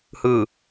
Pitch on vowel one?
low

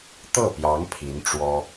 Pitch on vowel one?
falling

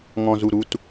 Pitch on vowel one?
low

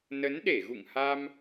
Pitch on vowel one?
rising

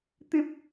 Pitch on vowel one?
high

